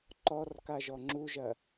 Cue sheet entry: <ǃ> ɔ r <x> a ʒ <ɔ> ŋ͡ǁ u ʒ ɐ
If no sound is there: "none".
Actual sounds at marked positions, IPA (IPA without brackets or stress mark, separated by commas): ǃ, k, ɔ